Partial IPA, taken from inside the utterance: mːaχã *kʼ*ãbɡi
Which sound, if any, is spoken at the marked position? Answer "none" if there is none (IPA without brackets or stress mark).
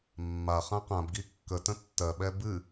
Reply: q